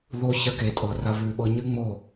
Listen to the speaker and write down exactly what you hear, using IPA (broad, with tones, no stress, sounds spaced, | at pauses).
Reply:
ð o˧ ç ɐ˧ k e˨ tʼ ɤ˨ r ɐ˧ β ʉ˨ ɓ ɤ˧ ɲ ɨ˦ ŋ͡m o˦˨